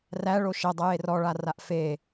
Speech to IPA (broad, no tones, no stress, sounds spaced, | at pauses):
r æ ɭ o ʃ ɛ dˤ ɛ j e r ɔ ɭ a r a ʔ f e